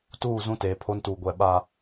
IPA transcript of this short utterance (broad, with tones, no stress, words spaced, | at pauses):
tuː˦˨ zũ˦teː˨pʰo˦ntuː˨ ɡʷɛ˨ɓaː˨